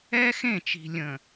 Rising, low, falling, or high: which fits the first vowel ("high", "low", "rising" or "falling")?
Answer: high